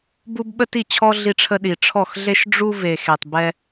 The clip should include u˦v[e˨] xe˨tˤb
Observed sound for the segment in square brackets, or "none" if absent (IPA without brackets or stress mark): e˨